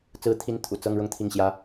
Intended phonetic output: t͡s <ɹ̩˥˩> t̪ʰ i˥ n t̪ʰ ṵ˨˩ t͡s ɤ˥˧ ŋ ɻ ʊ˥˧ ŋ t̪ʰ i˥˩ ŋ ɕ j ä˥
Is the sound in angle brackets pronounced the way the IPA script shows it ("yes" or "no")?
no